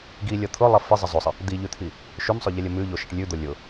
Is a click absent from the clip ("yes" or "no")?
yes